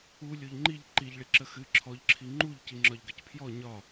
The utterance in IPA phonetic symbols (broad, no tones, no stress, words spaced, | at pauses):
u lʲoʎŋ͡ǃiʎ ǃiʎɭiǁə xɨ ǁʰɔʎǁʰi ŋ͡ǃuʎ ciŋ͡ǁɒʎɡəcpʰjɔ ɲɒ